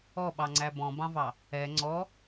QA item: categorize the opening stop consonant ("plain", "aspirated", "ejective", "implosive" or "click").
implosive